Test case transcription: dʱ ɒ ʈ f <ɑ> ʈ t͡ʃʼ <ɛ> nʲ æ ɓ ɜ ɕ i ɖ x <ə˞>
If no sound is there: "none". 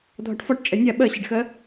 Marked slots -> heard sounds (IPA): ɒ, ɛ, ɜ

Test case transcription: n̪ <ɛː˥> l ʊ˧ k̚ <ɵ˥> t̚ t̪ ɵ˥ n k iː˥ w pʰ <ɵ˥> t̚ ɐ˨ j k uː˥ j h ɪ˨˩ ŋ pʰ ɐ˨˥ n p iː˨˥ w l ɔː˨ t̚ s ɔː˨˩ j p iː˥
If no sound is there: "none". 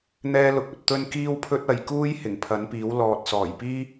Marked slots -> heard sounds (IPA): ɛː˥, ɵ˨, ɵ˥

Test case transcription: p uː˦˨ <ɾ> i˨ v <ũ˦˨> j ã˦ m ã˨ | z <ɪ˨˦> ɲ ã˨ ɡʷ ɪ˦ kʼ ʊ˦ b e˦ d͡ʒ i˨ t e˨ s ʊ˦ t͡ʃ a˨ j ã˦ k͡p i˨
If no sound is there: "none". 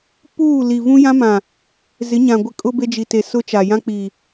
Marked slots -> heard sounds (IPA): l, ũ˦, ɪ˨˦

